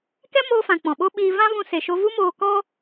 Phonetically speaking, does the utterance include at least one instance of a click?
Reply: no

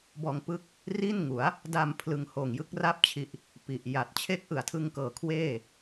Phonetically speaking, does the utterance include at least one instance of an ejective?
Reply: no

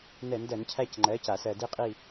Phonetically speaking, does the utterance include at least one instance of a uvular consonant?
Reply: yes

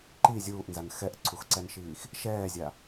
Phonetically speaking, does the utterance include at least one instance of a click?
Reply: yes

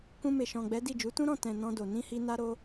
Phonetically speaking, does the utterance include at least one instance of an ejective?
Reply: no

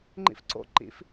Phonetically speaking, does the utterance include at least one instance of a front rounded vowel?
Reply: no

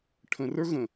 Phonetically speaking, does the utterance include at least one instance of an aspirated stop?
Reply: yes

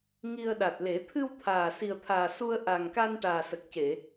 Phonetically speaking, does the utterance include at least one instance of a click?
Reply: no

